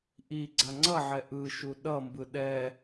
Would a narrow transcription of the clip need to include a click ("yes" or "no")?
yes